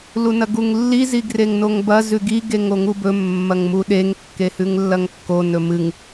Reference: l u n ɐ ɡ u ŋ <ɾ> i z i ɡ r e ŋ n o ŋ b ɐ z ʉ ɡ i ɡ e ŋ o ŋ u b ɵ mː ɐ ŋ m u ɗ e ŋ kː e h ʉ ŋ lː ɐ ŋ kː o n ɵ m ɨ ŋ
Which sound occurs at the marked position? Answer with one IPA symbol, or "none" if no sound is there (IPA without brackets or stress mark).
lː